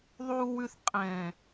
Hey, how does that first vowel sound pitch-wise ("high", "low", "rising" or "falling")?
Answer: low